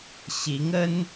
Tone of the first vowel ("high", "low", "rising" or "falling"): rising